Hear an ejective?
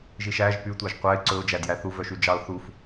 no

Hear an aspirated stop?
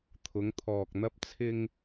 yes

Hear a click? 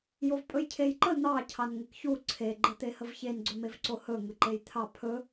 yes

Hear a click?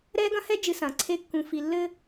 yes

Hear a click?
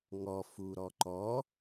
yes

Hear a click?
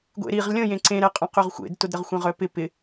yes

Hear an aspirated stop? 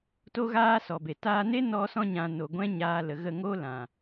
no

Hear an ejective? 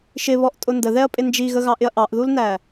yes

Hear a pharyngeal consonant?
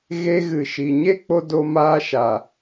no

